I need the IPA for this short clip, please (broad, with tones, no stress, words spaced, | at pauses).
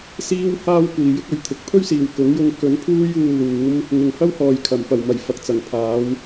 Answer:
siː˧w haː˥w kʷiː˨jɪ˥k̚ ɵ˨˥ɥt̪ʰɪ˨k̚ pʰɵ˥ɥsiː˨˩w kʊ˨˥ŋjʊ˧ŋ kɵ˨˥npʰuː˥j uː˧luː˨˥m | ŋɪ˨ŋhɐ˥whɔː˨jkʰɐ˨˩m pɐ˨˩wmɐ˨˩j fɐ˨k̚t͡sɐ˨˩ŋpʰaː˨˧w